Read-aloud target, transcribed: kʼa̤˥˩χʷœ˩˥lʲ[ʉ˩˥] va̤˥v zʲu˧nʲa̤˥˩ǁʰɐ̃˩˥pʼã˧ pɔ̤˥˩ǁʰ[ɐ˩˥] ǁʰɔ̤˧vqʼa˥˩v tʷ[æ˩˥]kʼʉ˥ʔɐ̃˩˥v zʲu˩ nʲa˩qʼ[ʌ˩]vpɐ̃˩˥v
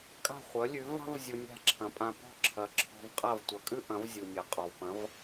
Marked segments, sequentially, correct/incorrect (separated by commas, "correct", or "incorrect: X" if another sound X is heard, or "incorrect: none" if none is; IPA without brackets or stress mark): correct, correct, incorrect: ɐ˩˥, incorrect: ɔ˩